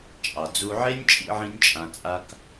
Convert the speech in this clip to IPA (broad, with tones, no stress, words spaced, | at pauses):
t͡ʃʼɑ˨d͡zu˧ ʕe˦nʲt͡ʃʼḭ˧ ʕĩ˦nʲt͡ʃʼã˧t͡sʼa˦k